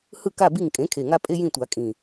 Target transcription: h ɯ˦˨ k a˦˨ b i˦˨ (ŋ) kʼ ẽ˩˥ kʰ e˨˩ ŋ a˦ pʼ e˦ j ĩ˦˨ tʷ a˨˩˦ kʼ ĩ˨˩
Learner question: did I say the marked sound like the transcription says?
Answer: yes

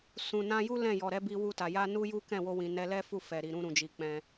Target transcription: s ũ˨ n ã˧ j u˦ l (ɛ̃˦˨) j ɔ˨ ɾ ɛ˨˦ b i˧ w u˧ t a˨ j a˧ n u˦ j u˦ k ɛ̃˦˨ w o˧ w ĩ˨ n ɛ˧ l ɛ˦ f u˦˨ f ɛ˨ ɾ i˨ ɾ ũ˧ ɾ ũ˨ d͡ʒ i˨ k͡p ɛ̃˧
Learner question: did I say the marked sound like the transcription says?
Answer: yes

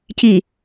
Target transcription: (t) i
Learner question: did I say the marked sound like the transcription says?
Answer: no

